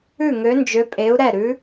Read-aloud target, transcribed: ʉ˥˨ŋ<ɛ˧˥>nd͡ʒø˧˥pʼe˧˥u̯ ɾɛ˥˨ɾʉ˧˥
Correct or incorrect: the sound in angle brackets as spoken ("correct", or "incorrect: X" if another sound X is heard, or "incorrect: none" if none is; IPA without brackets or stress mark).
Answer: incorrect: ø˧˥